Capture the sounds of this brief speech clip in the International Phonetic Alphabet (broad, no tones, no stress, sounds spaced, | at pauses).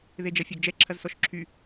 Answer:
ð e d͡ʒ ɐ fʲ a ɡ d͡ʒ ɛ ǁʰ ɐ z s ɔ ʃ ǁʰ y